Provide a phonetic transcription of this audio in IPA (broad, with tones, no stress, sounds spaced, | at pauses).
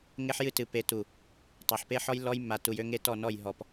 ŋ e˦ ħ j ɨ˦ t ɨ˨ p e˨ t u˨ | tˤ a˨ ħ p e˦ ħ ɔ˦ j lː ɔ˦ j mː a˨ t u˨ j ø˦ ŋ e˦ t ɔ˦˨ n ɔ˦˨ j ɦ ɔ˨ p